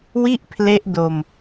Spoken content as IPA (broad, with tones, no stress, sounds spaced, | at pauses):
w i˥˩ ʔ pʰ l e˦˥ ʔ d o˧ m